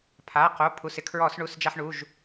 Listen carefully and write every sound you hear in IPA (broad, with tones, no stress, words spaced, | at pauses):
pʰa˩˧˩qo˩˧˩ pʰu˩˧˩sɪ˧kʰɹɔ˧˩˧s ɳu˩˧˩sd͡ʒa˧ħɳu˩˧˩ʒ